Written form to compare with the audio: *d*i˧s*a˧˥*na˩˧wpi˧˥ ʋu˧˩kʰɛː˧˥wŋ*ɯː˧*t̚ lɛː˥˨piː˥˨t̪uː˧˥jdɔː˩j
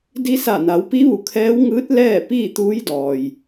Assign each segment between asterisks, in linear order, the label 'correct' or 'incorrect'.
correct, incorrect: a˧˩, incorrect: ɯː˧˥

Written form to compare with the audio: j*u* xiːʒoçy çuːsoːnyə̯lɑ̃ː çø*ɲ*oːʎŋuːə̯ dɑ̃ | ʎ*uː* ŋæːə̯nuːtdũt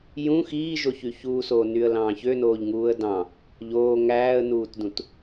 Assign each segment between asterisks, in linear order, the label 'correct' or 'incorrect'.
incorrect: ũ, incorrect: n, incorrect: oː

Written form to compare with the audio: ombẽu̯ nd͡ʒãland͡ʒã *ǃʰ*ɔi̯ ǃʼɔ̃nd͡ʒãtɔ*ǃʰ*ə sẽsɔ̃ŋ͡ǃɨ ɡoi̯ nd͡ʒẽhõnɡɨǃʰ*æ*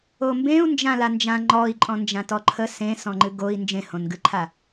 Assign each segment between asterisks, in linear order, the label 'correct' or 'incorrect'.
incorrect: ŋ͡ǃ, correct, incorrect: a

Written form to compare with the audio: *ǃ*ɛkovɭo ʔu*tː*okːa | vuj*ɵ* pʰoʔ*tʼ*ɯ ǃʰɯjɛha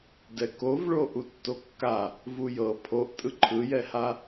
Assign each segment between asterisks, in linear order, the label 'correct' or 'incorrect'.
incorrect: d, correct, incorrect: ɤ, correct

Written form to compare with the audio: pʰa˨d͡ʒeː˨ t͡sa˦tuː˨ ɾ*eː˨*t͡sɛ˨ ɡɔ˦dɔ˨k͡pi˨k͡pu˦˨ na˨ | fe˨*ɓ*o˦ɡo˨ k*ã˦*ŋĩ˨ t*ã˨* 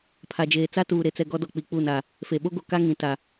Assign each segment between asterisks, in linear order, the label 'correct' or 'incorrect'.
incorrect: e˨, correct, incorrect: a˦, incorrect: a˨

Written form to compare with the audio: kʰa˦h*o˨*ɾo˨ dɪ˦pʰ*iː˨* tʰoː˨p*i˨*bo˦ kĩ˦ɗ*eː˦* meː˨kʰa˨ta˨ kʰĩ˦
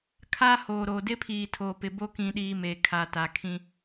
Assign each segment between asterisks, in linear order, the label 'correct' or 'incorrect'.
incorrect: oː˨, correct, incorrect: ɪ˨, incorrect: iː˦

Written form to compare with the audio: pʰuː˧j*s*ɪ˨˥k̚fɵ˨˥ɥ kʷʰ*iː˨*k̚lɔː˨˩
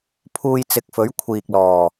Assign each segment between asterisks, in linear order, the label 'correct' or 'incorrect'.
incorrect: t͡s, correct

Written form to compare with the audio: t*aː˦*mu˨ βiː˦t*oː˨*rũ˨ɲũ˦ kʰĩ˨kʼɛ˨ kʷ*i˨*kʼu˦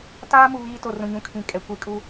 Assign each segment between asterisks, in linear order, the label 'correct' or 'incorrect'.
correct, incorrect: o˨, correct

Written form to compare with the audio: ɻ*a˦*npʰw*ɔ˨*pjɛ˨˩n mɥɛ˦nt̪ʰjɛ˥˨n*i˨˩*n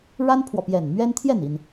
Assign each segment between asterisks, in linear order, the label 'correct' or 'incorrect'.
correct, correct, correct

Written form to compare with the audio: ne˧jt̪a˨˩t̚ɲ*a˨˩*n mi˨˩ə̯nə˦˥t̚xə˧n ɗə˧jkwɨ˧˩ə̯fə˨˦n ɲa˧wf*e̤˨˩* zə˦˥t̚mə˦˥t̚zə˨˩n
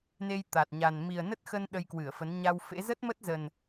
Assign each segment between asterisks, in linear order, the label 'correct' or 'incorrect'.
correct, incorrect: ḛ˧˥

